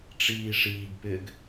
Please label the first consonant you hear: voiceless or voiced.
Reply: voiceless